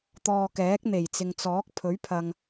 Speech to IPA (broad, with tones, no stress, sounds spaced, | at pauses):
t̪ ɔː˧ k ɛː˨˥ k̚ n̪ e˨˩ j t͡s ɪ˨ ŋ t͡s ɔː˨˥ k̚ pʰ ɵ˨˥ ɥ pʰ ɐ˨ ŋ